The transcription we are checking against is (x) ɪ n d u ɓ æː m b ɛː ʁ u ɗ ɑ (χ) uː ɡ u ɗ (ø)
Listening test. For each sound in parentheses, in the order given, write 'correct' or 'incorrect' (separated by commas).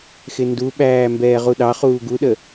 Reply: correct, correct, incorrect